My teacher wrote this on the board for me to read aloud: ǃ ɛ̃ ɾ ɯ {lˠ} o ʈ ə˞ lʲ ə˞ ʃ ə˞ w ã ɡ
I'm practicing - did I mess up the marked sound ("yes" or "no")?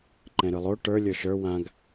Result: no